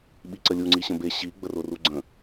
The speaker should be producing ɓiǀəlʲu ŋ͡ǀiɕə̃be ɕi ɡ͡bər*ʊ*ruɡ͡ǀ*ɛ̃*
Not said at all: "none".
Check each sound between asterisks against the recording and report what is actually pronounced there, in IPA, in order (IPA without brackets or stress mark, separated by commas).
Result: ʊ, ə̃